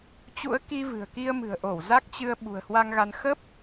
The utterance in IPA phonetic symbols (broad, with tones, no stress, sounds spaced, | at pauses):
t͡ɕ ṵ˧˥ ə̯ k i˧ v ɨ̤˨˩ ə̯ k i˧ ə̯ m ɨ̤˨˩ ə̯ ʔ o˧˩ w z a˦˥ k̚ t͡ɕ ɨ˧ ə̯ ɓ ṳ˨˩ ə̯ h w a˧ ŋ ɣ a˧ n x ə˦˥ p̚